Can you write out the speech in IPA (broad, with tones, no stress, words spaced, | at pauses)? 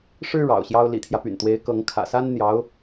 ʂɻ̩˥ ɻɑ̰˨˩ʊ̯ɕjɑ˥ʊ̯ lḭ˨˩t̪ʰjä˦py̰˨˩nt̪we˧˥ɪ̯ kɤ˧˥ŋkʰä̰˨˩sa˥n n̪jɑ˧˥ʊ̯